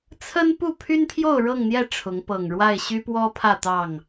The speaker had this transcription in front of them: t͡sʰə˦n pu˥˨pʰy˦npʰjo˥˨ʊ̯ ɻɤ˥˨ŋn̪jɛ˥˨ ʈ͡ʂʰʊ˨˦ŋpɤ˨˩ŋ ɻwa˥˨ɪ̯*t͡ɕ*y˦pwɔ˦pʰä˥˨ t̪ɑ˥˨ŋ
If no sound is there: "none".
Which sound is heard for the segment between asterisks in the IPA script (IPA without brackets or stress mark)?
ɕ